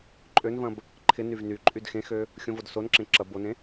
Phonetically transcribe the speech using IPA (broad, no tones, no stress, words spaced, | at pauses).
ǃʼønvɐ̃b | ǃʰɪnyv ny ǃʼydxẽxø | xʲõvodsonǁẽ ǁɐ bonẽ